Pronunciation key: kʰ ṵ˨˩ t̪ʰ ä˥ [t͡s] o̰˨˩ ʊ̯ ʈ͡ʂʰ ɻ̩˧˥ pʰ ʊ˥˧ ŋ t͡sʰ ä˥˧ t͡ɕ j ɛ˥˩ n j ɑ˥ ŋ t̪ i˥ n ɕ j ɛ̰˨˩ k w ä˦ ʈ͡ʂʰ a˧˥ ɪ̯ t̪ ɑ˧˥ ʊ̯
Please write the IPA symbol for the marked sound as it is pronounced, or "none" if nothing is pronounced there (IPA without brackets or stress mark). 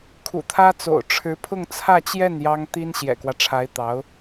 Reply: t͡s